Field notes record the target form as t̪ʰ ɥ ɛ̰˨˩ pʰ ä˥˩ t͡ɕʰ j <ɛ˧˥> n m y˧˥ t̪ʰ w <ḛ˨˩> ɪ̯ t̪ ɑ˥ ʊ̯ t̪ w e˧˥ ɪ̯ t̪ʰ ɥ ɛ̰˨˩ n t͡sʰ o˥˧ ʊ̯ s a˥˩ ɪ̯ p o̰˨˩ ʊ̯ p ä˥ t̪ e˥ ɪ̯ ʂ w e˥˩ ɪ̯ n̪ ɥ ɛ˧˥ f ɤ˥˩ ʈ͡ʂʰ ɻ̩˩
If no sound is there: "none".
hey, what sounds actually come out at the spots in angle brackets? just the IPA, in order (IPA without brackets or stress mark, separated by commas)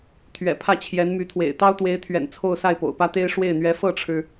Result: ɛ˧˥, ḛ˨˩